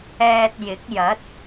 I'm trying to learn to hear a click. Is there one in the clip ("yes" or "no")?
no